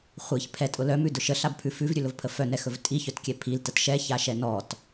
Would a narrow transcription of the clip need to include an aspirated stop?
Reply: yes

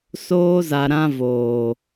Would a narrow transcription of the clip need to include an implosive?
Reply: no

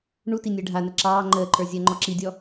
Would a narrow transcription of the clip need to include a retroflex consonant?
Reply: yes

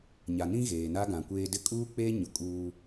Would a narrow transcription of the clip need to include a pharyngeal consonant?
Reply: no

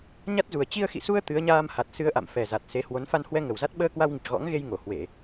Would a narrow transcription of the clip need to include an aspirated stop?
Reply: no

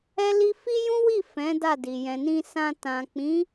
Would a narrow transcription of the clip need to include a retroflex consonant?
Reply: no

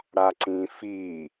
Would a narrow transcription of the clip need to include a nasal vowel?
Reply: yes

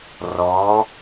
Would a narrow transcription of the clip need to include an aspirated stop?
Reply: no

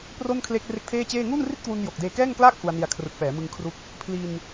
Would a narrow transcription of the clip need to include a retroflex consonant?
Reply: no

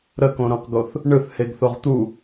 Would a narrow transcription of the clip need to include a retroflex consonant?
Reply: yes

